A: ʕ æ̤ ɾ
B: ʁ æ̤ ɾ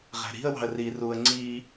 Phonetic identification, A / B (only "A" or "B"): B